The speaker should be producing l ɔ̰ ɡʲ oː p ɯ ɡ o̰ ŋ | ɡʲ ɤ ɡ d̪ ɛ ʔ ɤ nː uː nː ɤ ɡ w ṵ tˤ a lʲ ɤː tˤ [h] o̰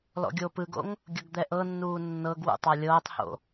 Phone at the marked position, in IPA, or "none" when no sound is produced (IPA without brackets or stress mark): h